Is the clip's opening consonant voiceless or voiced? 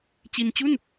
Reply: voiceless